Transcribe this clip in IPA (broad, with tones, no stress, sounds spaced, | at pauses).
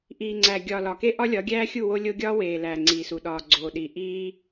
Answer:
ʔ iː˨ ŋ͡ǀ æ˨ ɡʲ ɒ˨ l ɒ˨ k e˦ ʔ ɒ˦ lʲ ɒ˨˦ ɡʲ æː˦ xʲ u˦˨ w o˦ lʲ o˦ ɡʲ ɒː˦ w eː˨ l æː˨ ŋ͡ǀ iː˨ s u˨ ɗ ɒː˨ ɡ͡ǀ oː˨ ɗ i˨ ʔ iː˦